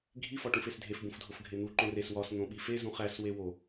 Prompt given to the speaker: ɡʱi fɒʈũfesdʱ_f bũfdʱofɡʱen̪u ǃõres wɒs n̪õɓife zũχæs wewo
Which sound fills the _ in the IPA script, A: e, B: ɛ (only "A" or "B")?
A